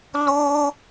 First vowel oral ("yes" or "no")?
yes